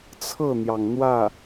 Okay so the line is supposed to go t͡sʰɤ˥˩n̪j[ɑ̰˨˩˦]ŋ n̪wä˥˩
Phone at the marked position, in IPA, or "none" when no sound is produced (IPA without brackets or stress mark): ɑ˩